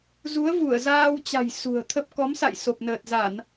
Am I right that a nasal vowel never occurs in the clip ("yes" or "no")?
yes